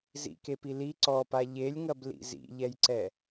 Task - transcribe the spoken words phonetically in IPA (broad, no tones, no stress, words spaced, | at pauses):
zḭkepi li ǀɔpa ʎelʲŋɐblḭ zḭʎɛjǀɛ